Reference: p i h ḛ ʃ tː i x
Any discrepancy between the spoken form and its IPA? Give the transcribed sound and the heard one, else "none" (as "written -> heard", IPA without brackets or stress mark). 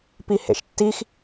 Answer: none